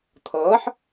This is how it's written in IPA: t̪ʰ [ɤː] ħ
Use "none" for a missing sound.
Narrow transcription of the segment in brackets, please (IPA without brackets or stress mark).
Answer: ɤː